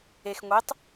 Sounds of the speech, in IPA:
ex ŋʷetˤ

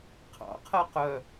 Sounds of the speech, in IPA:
qʰɑ̰qʰɜ qœ

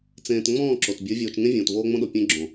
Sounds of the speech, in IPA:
t͡sẽː˨t ŋ͡mɔ̃ː˦˨ ǁo˨t bʲə˞˨˦vʲoː˨t͡ʃŋẽ˦ vʲõː˨tvoː˦ŋ͡mõ˦ɗo˨ pʲẽ˦ ɡ͡ǁõ˨

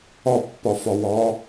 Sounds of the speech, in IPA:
ɒpːɒfɒwɒː

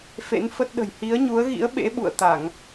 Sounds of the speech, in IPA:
fḛ˧˥nfə˦˥t̚ɗə̤˨˩j hi˨˦ə̯ɲu˨˦ə̯ɣḭ˧˥ə̯ ɓḛ˧˥ɓṵ˧˨ə̯t̪a˧˩˨ŋ

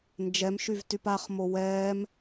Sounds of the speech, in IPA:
nd͡ʒɛm ʃyvtypaχ mowɛːm

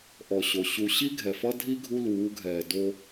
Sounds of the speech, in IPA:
ʔɔ˨ɕo˨ ɕu˨ɕi˦ ɡʱɛ˨fʌ˦ dʱi˦ ɡʱu˦luː˨˦ɡʱɛː˨do˦

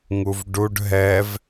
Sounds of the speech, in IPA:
ŋuvɖuɖ ɦɛv

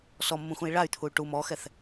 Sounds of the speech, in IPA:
sɔmːũxũi̯ ɭay̯t̪ʰuy̯ ʈum ɔxɛθ

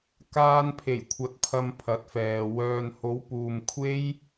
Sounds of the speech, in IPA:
kaː˨npʰe˨˩jkʷʰɐ˨t̚ pʰɐ˧mpʰɐ˨˥t̚fɛː˨ wœː˨nho˨˧w puː˧m kʷʰe˥j

